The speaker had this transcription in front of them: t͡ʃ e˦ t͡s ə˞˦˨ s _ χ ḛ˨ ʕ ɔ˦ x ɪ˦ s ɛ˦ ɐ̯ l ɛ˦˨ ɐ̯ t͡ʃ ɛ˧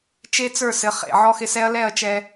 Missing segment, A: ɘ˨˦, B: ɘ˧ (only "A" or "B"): A